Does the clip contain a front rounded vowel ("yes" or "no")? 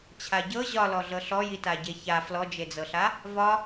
no